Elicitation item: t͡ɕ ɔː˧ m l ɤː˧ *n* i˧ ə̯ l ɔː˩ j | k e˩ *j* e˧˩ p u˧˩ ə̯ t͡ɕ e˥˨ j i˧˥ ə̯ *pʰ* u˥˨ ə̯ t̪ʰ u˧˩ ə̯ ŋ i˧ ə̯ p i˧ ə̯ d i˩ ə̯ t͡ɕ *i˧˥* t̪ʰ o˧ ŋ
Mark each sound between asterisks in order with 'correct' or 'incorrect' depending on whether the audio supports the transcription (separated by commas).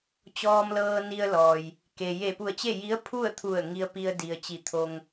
correct, correct, correct, incorrect